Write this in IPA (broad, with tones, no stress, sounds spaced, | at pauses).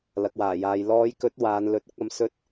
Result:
l ɐ˨ k̚ w aː˨˩ j aː˨ j l ɔː˨˧ j k ɵ˨˥ t̚ w aː˨˧ n l ɵ˨˥ t̚ ʊ˨˥ k̚ ɐ˧ m s ɵ˧ t̚